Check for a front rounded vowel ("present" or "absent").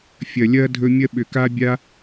present